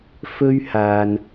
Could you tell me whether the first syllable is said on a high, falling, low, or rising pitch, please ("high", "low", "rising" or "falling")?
high